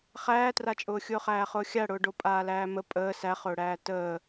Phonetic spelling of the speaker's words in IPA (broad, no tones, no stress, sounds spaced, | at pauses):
χ æː t r a t͡ʃʼ ʊː xʲ ʊː χ æː χ ʊː xʲ a ɽ ʊː ɖ o pʼ aː l æː m ə pʼ əː s æ χ ʊː ɽ æː t əː